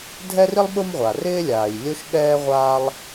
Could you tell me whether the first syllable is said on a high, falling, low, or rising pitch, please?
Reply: high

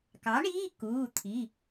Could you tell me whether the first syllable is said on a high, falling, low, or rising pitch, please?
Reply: rising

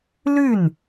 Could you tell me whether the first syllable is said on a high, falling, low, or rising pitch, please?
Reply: falling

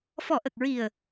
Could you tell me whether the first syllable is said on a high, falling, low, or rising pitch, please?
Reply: low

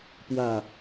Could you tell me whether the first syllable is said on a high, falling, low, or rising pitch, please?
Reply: low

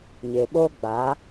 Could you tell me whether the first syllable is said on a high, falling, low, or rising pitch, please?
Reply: low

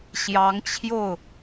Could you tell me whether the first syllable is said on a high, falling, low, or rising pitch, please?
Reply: rising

